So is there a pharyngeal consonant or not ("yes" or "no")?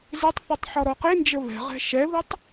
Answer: yes